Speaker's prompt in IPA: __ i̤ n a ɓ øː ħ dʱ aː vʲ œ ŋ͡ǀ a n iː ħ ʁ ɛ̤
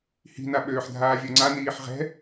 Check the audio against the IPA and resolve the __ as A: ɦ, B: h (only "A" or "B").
B